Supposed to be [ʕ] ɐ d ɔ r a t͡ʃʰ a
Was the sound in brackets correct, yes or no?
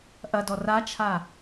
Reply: no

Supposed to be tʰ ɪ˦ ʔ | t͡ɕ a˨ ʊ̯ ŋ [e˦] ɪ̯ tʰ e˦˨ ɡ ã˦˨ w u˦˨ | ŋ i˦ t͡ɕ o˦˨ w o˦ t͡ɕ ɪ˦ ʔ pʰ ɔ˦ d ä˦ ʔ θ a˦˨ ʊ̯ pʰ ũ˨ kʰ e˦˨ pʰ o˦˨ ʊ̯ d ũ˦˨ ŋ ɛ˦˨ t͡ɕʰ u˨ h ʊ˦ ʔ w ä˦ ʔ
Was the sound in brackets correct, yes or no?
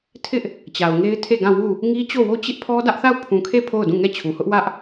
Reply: yes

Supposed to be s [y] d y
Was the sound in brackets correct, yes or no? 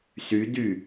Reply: yes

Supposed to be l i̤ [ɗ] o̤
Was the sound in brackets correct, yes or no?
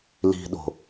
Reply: yes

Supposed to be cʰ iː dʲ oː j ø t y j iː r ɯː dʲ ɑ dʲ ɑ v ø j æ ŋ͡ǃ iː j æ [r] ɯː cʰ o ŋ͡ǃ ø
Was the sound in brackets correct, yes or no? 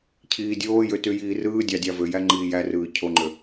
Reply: yes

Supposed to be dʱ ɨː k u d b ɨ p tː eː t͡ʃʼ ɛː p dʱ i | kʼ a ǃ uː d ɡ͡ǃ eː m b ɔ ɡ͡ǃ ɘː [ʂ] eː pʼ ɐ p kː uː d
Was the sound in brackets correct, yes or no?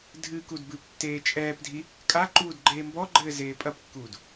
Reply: no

